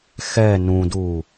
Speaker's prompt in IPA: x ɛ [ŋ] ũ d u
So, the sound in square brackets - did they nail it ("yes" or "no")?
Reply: no